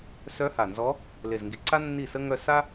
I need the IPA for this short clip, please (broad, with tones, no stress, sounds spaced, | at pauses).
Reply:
s œ˧˥ h a˨˩ n z ɔ˧˥ | l e˨˩ z ŋ ɡ i˨˩ ǀ a˥ nː i˥˩ s ə˥ ŋ œ˥˧ s a˥